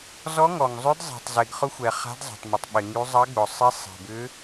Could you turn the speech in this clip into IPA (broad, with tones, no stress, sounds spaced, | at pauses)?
z ɔ˧˥ ŋ ɔ˩ ŋ zˤ ʏ˧˥ d zˤ e̤˩ tˤ z e˩ ɡ χ ʊ˧˥ xʷ ɛ˩ χ a̤˧˥ d zˤ a̤˩ tˤ m ɪ˩ tˤ ɓ ɪ˩ ŋ y˧˥ zˤ ɐ˧˥ ɡ͡b ʊ˩ sˤ e˧˥ sˤ e̤˩ b ʏ˧˥